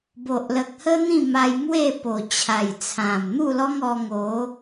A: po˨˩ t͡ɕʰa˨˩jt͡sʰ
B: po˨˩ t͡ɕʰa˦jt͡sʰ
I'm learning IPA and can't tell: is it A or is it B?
A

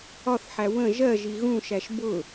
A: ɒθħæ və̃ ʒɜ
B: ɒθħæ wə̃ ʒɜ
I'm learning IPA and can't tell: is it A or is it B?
B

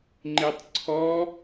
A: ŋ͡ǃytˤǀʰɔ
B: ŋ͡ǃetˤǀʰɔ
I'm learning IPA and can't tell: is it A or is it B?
B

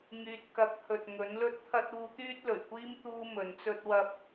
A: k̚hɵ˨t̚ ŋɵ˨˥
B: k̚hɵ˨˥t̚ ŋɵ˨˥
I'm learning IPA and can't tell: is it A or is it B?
A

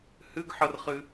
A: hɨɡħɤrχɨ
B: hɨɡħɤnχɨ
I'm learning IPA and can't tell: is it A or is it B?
A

